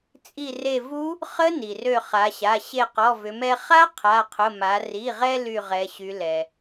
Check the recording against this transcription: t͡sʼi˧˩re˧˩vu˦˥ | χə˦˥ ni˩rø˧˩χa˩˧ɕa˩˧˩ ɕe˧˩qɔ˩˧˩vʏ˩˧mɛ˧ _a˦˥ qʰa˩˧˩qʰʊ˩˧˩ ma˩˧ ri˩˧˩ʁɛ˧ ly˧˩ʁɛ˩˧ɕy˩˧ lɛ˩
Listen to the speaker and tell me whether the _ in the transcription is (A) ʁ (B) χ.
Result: B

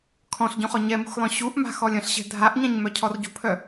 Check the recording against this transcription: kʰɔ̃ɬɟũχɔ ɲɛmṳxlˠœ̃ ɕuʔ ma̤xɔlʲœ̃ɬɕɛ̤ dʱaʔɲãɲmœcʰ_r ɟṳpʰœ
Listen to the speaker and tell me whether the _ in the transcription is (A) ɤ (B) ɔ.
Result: B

